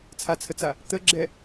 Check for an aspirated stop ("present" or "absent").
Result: present